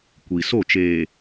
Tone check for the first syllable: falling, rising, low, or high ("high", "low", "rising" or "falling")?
low